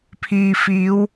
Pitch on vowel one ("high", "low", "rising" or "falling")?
low